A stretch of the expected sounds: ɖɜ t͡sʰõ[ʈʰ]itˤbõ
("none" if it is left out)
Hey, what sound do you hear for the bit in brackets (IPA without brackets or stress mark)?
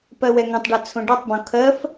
ɖ